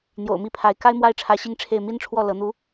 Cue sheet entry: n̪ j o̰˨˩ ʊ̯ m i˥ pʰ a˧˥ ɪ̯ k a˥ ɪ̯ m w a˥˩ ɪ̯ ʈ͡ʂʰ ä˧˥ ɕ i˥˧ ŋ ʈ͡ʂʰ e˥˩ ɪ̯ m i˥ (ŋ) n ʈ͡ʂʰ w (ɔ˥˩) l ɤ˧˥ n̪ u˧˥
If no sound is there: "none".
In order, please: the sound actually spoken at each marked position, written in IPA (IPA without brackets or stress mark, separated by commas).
none, ɔ˥˩